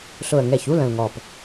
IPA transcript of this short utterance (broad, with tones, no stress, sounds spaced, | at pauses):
ɬ ʊ˨˩ ə̯ ŋ ɛ˨˩ ç u˥˧ l ə̃˨˩ l ŋ ɔ˨˩ p